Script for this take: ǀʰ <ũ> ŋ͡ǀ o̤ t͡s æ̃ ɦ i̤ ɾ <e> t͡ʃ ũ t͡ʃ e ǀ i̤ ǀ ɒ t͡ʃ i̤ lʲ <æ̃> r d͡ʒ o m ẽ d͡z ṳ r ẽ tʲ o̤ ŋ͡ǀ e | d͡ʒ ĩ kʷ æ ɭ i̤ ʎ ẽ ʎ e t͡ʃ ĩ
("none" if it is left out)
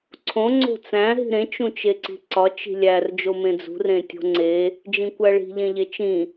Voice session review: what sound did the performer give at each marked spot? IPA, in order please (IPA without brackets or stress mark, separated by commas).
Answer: õ, ẽ, æ